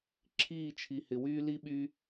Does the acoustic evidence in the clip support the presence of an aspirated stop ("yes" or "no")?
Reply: yes